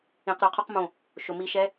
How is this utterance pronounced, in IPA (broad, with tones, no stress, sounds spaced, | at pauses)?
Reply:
ĩ˧˩˧ q ɾ œ˧˩ qʰ o˥ q m õ˧˩ | ʃ o˩ m i˧˩˧ ʃ ɛ˨˦